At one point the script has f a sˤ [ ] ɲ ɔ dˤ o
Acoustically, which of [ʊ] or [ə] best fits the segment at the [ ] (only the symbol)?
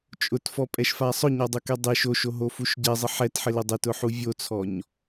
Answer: ʊ